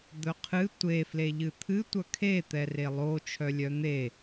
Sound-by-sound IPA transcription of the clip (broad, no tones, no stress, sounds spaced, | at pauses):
d̪ œ qʰ ɨ tʷ e f l e ʎ ɨ t̪ʰ ɨ tʷ œ kʰ e t̪ ɛ r e lˠ o t͡ʃʰ œ lʲ œ n̪ e